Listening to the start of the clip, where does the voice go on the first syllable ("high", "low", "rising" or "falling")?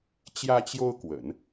high